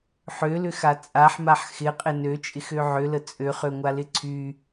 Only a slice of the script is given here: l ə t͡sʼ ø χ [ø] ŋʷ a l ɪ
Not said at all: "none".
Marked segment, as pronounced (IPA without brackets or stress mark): ø